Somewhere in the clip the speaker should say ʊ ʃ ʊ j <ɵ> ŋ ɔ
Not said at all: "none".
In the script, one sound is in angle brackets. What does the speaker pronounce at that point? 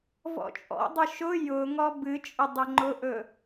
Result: ʊ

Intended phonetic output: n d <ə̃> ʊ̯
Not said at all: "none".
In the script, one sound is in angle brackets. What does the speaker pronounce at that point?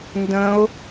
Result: ə̃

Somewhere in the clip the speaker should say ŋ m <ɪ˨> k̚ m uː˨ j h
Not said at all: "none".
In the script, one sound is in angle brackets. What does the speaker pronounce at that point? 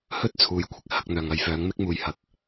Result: ɪ˥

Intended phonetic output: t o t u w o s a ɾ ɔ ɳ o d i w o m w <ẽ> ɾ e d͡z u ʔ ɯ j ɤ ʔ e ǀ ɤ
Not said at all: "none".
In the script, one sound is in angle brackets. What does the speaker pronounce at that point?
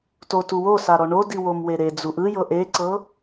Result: e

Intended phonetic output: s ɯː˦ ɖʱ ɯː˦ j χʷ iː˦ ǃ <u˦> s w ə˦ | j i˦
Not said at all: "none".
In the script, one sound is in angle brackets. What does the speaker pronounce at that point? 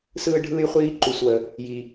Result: u˦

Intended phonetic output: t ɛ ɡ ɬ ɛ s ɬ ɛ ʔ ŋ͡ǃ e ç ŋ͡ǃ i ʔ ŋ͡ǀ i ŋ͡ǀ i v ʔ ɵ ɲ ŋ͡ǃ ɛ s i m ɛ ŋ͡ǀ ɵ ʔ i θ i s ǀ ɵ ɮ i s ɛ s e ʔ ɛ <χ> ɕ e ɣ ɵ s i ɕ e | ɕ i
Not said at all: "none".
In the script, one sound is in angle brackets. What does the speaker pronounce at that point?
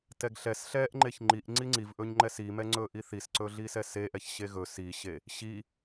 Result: ç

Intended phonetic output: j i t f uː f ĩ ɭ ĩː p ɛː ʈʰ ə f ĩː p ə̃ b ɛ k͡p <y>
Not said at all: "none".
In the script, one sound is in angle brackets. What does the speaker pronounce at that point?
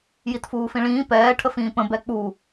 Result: u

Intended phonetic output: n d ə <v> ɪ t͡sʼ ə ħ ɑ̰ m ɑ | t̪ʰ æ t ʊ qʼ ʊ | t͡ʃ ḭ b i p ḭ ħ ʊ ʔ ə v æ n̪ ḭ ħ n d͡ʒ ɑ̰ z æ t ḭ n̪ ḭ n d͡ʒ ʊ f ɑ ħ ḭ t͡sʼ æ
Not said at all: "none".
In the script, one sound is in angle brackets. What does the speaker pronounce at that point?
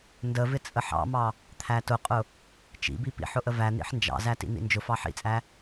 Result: v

